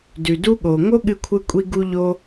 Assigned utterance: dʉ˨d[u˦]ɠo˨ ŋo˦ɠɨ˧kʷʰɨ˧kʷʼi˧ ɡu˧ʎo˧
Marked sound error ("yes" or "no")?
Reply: no